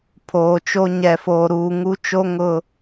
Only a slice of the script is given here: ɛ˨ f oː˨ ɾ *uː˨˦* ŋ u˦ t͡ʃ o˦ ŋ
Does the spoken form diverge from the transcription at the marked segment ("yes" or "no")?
yes